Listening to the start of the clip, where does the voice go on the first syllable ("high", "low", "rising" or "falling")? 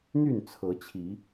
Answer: falling